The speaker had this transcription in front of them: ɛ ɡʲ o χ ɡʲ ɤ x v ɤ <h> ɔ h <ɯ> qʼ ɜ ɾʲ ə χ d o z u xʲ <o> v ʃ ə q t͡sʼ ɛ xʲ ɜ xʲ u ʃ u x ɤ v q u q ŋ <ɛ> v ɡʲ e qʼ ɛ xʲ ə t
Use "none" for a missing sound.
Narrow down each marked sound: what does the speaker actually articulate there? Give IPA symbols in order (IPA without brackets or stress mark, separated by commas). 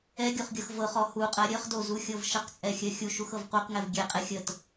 χ, u, ɤ, ɛ